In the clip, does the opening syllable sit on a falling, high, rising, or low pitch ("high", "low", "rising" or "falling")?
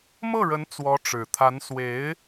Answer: falling